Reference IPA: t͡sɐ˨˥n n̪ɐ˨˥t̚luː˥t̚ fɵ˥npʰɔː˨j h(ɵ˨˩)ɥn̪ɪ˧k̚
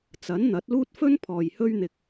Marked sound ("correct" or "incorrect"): incorrect